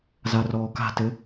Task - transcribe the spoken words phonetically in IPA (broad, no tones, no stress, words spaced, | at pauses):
zarɔːka̤tɘ